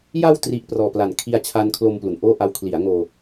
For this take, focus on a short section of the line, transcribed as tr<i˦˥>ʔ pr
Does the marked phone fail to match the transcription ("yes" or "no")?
no